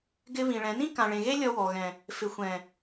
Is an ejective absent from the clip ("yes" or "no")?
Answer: yes